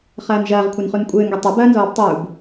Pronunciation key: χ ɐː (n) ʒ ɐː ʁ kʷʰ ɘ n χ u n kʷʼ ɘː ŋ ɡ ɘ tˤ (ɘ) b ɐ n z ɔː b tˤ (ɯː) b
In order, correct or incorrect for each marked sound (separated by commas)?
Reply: correct, correct, incorrect